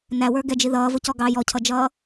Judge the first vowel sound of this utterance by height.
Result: low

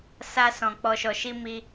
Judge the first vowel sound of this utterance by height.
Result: low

